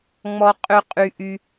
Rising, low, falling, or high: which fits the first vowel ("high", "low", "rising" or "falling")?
high